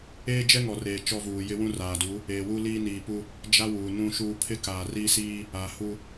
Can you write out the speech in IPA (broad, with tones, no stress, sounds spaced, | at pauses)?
eː˦ d͡ʒ ɛ˦ ŋ ɔ˨ r eː˨ t͡ʃ ɔ˦ v uː˨ j ɪ˦ w ũ˦ r aː˨ d u˨˦ | eː˨ w u˦ l iː˦ n iː˨ p u˦ | d͡ʒ a˦ w uː˨ n ũ˦ ʃ uː˦ pʰ ɪ˦ k aː˨ r i˦ s iː˦ | a˨ h u˦